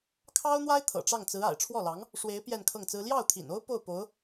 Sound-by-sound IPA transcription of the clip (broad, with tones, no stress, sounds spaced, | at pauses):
kʰ ɑ˥ ʊ̯ n̪ w a˥ ɪ̯ t̪ʰ ɤ̰˨˩ ʈ͡ʂ ɑ˥˩ ŋ t͡s ɹ̩˧˥ a̰˨˩ ɪ̯ ʈ͡ʂʰ w ɔ˥˩ l ɑ˧˥ ŋ | ʂ w e˧˥ ɪ̯ p j ɛ˥˧ n kʰ ɤ˥˩ ŋ t͡s ɹ̩˥ l j ɑ˥˩ ʊ̯ t̪ʰ ḭ˨˩ n o˥ ʊ̯ p o˥˩ ʊ̯ p o˧˥ ʊ̯